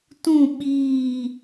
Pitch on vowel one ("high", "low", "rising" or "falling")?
falling